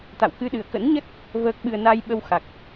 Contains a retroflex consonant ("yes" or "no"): no